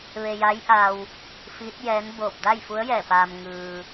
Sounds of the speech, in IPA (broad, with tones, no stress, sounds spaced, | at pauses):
ʋ e˧ j a˧˥ j ʔ a˧ w | f iː˧˥ t̚ j ɛː˧˥ n b oː˧˩ p̚ d a˥˨ j f u˧˥ ə̯ j ɛː˧˩ p aː˩ m ŋ ɯː˩